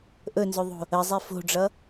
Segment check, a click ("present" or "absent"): absent